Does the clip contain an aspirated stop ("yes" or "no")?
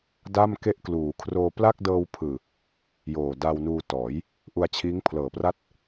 yes